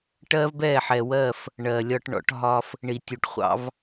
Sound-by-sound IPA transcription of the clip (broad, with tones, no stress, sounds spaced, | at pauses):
ʈ ɜ˦ v b ɛ˦˨ ħ ɛ˨ w ɜ˦˨ f | ɳ ɜ˨ lʲ ɒ˦ ʈ ɳ ɔ̰˨˦ ʈ ɦ ɒ˦ f | ɳ i˨ tʲ u˨ ʈ χʷ ɑ̰˦ v